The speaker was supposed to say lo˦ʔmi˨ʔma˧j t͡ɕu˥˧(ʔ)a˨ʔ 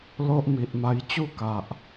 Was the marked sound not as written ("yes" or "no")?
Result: yes